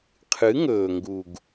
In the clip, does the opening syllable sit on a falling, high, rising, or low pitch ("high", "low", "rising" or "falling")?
rising